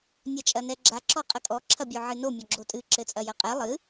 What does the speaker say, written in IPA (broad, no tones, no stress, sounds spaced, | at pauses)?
nʲ a t͡ʃʼ ɐ n ɛ ɡ͡ǁ a ǁ ɔ qʼ ɐ kʼ ɔ ǁʰ ɐ bʲ o ʕ ɨ n o mʲ ɔ ɡ͡ǁ o tʼ ɨ ǁ ɘ t͡sʼ ɐ j ɐ qʼ ɛ lˠ ɨ